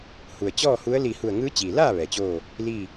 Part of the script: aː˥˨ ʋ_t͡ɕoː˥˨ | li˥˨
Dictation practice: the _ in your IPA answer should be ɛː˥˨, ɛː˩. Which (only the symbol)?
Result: ɛː˩